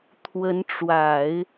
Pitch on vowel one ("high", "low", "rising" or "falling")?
rising